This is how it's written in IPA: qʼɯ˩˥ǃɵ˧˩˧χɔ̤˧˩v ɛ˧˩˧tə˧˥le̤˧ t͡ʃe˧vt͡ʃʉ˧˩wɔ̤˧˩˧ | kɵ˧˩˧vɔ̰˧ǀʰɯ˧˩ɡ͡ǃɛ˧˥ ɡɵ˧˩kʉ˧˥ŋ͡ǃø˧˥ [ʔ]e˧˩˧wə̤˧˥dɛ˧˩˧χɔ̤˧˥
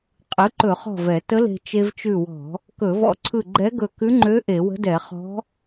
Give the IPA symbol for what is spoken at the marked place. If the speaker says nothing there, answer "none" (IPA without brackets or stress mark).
ʔ